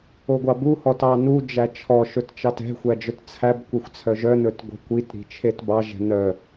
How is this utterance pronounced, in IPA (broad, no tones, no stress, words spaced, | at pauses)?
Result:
oɡʷɑbu hɔtɑnu d͡ʒæt͡ʃʰɔ ʃɵtt͡ʃɑtɛ̤ xʷæd͡ʒœtt͡sʰæb kʷɛxʷt͡sʰœʒœ nɵtɡʷɛ̤kʷit ɾi̤t͡ʃʰetbɑ ʒɛ̤nœ